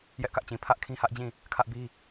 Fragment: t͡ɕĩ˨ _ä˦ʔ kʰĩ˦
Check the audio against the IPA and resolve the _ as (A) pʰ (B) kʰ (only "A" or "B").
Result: A